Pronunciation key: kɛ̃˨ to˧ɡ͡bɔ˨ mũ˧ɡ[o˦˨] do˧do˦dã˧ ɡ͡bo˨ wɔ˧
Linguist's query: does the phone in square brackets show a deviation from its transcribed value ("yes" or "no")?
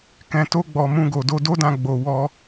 yes